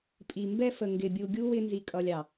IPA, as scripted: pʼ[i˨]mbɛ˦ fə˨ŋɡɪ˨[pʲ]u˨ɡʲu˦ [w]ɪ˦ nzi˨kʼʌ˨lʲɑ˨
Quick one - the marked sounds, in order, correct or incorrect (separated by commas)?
correct, incorrect, correct